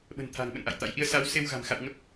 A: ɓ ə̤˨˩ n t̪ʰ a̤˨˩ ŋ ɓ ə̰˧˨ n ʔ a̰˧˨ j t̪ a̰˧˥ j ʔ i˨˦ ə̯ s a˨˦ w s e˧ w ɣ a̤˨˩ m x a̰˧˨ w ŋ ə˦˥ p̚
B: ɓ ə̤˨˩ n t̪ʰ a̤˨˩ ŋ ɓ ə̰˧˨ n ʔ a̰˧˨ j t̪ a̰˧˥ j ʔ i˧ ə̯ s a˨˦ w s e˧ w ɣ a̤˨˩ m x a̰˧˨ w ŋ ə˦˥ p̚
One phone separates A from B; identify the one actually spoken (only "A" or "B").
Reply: B